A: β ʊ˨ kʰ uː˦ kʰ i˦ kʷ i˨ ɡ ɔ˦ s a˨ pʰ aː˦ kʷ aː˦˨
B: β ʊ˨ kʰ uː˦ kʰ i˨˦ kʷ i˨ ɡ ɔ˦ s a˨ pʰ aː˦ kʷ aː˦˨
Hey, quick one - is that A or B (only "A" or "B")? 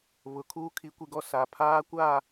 B